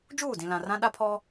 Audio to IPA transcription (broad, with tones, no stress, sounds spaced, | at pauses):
d͡ʒ uː˦˨ d ĩ˨ l ã˨ r ã˦ ɗ a˦ pʰ ɔ˦